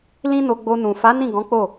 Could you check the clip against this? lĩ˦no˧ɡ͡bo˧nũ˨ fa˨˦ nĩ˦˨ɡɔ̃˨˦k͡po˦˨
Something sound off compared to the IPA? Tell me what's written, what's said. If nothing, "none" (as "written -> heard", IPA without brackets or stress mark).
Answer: none